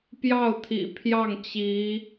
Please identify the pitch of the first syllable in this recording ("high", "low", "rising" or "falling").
falling